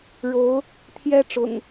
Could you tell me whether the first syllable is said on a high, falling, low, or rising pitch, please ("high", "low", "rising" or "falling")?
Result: rising